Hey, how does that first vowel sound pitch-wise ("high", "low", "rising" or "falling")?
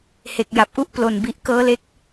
low